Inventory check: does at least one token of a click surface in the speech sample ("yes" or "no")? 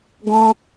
no